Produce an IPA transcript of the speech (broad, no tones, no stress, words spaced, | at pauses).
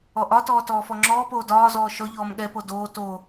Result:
ɔʔɒtɔː tɔːfɔŋ͡ǁɔːpoː dɒːzɔː ʃɔʎɔːm ɠɛpo doː to